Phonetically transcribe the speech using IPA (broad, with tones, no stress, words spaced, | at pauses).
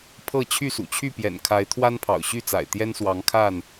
pʰɤ˥˨ t͡ɕʰy˥˨sṵ˨˩t͡ɕʰy˥˨ pjɛ̰˨˩nkʰa˨˦ɪ̯ t̪ʰwa˦npʰɑ̰˨˩ʊ̯ɕy˥˨t͡sa̰˨˩ɪ̯ t̪jɛ˦nswɑ˨˦ŋkʰa˥˨n